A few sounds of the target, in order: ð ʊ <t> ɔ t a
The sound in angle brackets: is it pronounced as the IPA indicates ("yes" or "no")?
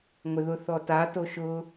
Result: no